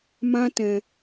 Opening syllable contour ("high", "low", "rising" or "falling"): high